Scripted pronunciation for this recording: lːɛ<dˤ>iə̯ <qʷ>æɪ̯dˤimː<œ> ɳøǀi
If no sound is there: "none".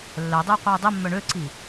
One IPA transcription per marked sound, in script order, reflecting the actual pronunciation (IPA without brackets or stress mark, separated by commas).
dˤ, qʷ, œ